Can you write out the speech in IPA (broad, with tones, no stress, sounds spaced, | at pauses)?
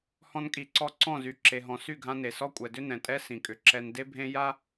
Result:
h ɔ̃˧ n kʼ i˨ ǀ ɔ˧ ǀ ɔ̃˦˨ z y˨ ǁ e˨ ɦ ɔ̃˨ s y˦˨ ɡʱ ã˧ n e˨ s ɔ˦ kʷʼ ɛ˨ d ʏ˦ n ɛ̃˨ tʼ ɛ˦ s ĩ˨ kʼ ʏ˨ ǁ ɛ˦ n d e˦ bʱ ẽ˦ j a˦